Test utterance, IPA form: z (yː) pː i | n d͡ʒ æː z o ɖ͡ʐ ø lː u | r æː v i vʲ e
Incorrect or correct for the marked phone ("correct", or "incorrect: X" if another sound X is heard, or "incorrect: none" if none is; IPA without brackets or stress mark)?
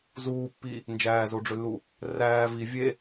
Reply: incorrect: uː